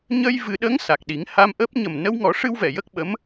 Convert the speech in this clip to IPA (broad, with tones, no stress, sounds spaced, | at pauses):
ɲ ə˧ j v ɨ˨˩˦ ɗ ə˧˥ ŋ s a˨˩ k̚ ɗ i˨˩˦ ŋ h a˧ m ʔ əː˦˥ p̚ ɲ ə˨˩ m n ə˧ w ŋ ɔ˨˩˦ ʂ ɨ˧ w v ɛ˨˩˨ j ə˦˥ k̚ ɓ ə˧˥ m